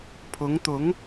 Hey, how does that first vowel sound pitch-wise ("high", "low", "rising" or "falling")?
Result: rising